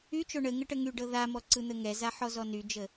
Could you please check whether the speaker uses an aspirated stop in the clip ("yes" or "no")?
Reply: no